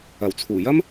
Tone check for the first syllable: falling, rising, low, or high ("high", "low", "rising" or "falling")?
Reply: low